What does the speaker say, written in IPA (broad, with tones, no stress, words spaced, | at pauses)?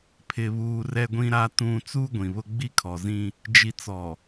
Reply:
pʰɪ˨βuː˨ rɛ˨ɡʷĩ˨ɾa˨ tũ˨ t͡suː˦ɡʷĩ˨βʊ˦ ɡ͡bi˦kʰɔ˨zĩ˦ | d͡ʒi˨t͡sɔ˨